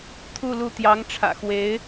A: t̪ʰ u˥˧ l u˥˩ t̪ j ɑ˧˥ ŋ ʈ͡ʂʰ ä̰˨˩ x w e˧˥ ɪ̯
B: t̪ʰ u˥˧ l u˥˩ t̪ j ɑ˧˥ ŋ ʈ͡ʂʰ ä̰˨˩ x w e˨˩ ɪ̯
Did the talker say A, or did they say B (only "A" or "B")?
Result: A